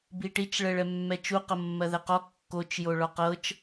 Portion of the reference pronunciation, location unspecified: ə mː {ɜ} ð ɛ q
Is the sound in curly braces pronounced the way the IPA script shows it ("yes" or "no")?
yes